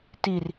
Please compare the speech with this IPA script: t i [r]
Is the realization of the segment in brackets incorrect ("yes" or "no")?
no